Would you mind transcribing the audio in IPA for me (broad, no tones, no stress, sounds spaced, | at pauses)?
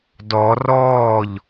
d ɔ r ɔː ʎ